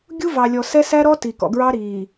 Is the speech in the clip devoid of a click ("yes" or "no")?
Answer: yes